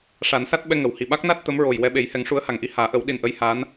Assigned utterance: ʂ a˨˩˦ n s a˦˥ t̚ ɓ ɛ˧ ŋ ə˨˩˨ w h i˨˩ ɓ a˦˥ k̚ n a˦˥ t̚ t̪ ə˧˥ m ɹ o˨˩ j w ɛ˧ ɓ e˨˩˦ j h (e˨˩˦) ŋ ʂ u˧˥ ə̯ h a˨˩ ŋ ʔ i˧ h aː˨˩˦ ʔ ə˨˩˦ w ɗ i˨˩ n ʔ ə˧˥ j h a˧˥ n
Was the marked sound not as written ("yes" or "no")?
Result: yes